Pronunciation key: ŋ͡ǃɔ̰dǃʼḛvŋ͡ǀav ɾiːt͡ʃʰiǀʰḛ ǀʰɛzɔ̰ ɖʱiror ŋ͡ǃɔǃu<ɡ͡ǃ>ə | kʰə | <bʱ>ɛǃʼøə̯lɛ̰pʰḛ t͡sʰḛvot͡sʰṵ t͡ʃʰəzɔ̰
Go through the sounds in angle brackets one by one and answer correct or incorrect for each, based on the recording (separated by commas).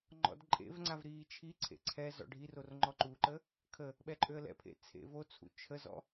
incorrect, incorrect